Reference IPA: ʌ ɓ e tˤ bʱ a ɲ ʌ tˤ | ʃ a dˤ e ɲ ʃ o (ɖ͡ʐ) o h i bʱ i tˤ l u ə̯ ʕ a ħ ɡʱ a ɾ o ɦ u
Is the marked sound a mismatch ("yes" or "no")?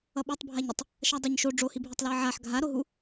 no